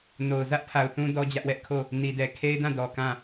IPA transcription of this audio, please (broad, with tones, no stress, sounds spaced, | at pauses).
n o˨ ʊ̯ z ä˦ ʔ pʰ a˨ ʊ̯ θ ũ˦ d ɔ˦ d͡ʑ ä˦ ʔ w ɛ˦ ʔ kʰ o˦˨ | n i˨ d ɛ˨ kʰ e˦ ɪ̯ d ã˦˨ d ɔ˨ k ã˦˨